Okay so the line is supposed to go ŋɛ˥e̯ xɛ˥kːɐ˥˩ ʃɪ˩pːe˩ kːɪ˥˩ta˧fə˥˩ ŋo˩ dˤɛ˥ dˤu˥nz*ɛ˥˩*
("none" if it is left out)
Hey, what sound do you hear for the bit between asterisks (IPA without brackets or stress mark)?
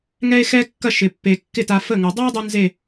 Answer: e˥˩